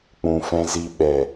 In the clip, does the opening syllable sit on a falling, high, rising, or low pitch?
low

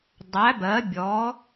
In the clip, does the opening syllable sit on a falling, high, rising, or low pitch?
rising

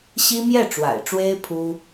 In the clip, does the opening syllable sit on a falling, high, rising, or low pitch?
high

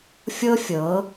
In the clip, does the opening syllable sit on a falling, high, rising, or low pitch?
high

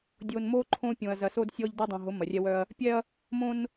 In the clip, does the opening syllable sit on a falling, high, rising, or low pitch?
low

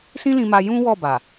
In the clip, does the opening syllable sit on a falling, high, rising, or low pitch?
high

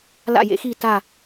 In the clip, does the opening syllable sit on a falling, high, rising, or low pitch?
falling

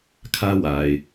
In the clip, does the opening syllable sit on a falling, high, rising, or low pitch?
high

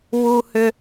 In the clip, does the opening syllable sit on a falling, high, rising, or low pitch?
high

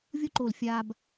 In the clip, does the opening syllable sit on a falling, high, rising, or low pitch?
high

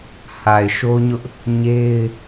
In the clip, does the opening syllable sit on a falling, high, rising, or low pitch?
low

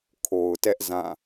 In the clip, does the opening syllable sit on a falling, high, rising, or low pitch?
low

